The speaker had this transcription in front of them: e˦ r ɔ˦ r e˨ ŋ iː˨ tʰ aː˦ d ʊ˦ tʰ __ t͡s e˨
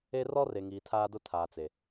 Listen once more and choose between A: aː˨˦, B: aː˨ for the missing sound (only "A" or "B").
B